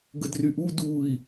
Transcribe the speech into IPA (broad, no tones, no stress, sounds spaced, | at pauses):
ɡ ə d r y ʔ u d u i̯